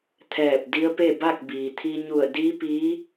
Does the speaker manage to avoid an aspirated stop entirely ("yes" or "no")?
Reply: no